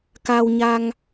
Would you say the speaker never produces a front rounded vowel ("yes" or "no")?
yes